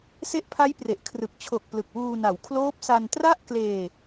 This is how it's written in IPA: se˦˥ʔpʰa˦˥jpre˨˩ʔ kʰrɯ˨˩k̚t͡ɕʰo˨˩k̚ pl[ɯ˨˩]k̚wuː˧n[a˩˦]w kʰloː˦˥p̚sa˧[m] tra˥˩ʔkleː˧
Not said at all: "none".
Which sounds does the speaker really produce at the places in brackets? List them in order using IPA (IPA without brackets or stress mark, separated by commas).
ɯ˨˩, a˩˦, n